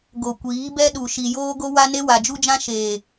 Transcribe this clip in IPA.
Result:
ɡo˨kʷiː˨˦bɛ˦ɗu˨ ʃi˨joː˦ɡo˦wa˦ ne˦wa˨d͡ʒu˦d͡ʒã˦ ʃeː˨

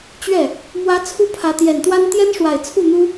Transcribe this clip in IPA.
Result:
t͡ɕɥɛ˥˩ | mwä˧˥ t͡sʰu˥pʰä˧˥ t̪jɛ˨˩nt̪wa˥n t̪jɛ˥nʂwa˨˩ɪ̯t͡sʰu˥˩n̪u˥

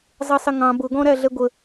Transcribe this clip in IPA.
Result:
zˤisˤɪŋɑ̃ bʊɡɔ̃ɾæɮɛ ɡʷə

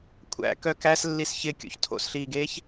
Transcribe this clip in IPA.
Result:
kʷʰæ̰kœ kæs lːisçɪ kʲo̰çtʰo̰sɬiːɡeːç

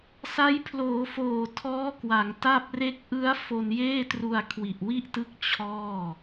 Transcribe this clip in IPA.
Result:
sa˦˥j pʰloː˩˦foː˨˩ tʰɔː˦˥kwa˩˦ŋta˥˩p̚ re˦˥k̚ʔɯ˦˥a̯ fo˧njeː˥˩tru˧a̯ kʰwi˨˩ʔwi˥˩ʔtɯ˦˥k̚ t͡ɕʰɔː˥˩

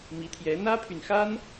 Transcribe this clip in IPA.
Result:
mi˧˥t̪ʰjɛ˧˥ n̪ä˥pʰy˨nxa˥n

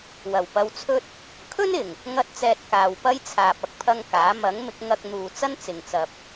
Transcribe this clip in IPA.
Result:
wɐ˨˩wpɐ˧wt͡sʰɵ˥t̚ | kʰɵ˥nɪ˨˩ŋ | ŋɐ˥t̚t͡sɛː˧t̚ kaː˨w pɐ˥jt͡sʰaː˨p̚ ɐ˧k̚pʰɐ˥ŋkaː˨˥ mɐ˨˥ŋ mɪ˨˥k̚ŋɐ˧k̚n̪uː˨ t͡sɐ˥nt͡sɪ˨ŋt͡sɐ˧p̚

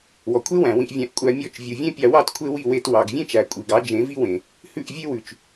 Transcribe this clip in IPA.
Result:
wɔ˨kʷʰe˦wæ̃˨ wĩ˧ʔvʲæ̃˧ʔ kʷʼæ˧mʲɔ˦˨t͡ʃ vʲu˨vʲẽ˦pʲɑ˧wɑ˦t kʷʰe˦wi˦˨we˧t wɑ˨ɡ vʲẽ˦t͡ʃæ˨kʷʼi˨ɡɑ˨˦ d͡ʒẽ˨˦vi˦wẽ˨ | hʉ˦˨ʔvʲe˦wʉ˨t͡ʃ

